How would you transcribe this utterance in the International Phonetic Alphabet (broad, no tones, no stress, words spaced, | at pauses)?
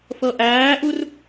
fɤʔæːʔur